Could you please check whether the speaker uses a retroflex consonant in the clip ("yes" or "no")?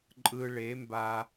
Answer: yes